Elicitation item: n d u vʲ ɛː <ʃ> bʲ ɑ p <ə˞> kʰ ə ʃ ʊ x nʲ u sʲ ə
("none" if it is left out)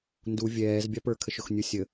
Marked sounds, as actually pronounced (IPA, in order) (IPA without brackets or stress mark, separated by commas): z, ə˞